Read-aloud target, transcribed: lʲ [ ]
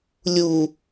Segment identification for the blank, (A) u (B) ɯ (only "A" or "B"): A